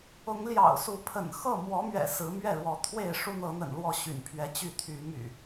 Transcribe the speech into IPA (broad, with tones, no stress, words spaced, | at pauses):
ʊ˨˦ŋljɑ̰˨˩ʊ̯su˨˦pʰə̰˨˩n xɤ˥˨mwɔ˨˦mɥɛ̰˨˩ sɹ̩˨˦ mɥɛ˥˨ɻwɔ˨˦ t̪ʰwe˥˨ɪ̯ ʂu˦n̪ɤ˨˦n̪ə̰˨˩n lwɔ˥˨ɕy̰˨˩npʰɥɛ˨˦ t͡ɕy˥˨t̪ʰy˨˦my̰˨˩